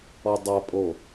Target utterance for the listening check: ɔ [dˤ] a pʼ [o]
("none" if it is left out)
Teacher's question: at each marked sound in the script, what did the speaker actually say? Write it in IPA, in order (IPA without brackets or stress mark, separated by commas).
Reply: dˤ, o